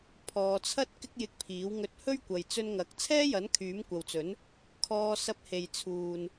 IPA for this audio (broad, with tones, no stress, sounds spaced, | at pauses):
pʰ ɔː˨ t͡sʰ ɐ˥ t̚ k ɪ˥ k̚ j ɪ˧ k̚ pʰ iː˨˥ w ŋ ɵ˧ t̚ h ɵ˥ ɥ kʷ ɐ˨ j t͡s ɵ˧ n ŋ ɐ˨˥ k̚ t͡sʰ ɛː˥ j ɐ˨˥ n kʰ yː˨˥ m kʷ ɐ˨ w t͡s ɵ˨˥ n | kʰ ɔː˧ s ɐ˧ p̚ h e˨ j t͡sʰ uː˨ n